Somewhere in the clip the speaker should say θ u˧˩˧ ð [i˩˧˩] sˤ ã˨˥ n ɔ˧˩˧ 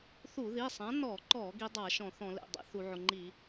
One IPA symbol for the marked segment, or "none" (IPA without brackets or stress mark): i˩˧˩